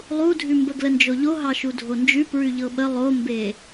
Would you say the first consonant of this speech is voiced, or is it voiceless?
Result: voiced